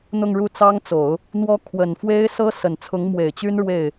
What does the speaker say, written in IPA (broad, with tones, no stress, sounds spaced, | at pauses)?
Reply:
n̪ ʊ˥˧ ŋ ɻ u˥˩ t͡s ɑ˥ ŋ t͡s o˨˩˦ ʊ̯ | n̪ w ɔ˥ kʰ w ə˨˩ n f w e˥ ɪ̯ s ɤ˥ s ə˨˩ n t͡sʰ ʊ˧˥ ŋ m w e˨˩ ɪ̯ t͡ɕ y˥ n ɻ w e˥˩ ɪ̯